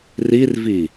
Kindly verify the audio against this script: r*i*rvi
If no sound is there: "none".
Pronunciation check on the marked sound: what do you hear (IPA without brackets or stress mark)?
i